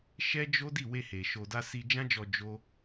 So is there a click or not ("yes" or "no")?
no